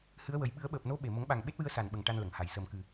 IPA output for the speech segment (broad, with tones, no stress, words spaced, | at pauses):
hɨ˧˥ə̯wə˨˩˦j ɓɨ˨˩˦ə̯ɓəː˨˩p̚no˧˥ ɓe˨˩ mə˨˩˦ŋɓa˨˩ŋ ɓe˦˥t̚wɨ˧ə̯ sa˨˩nɓə˨˩ŋ ʈa˧nlə˨˩˨ŋha˨˩˨j səː˨˩mkɨ˨˩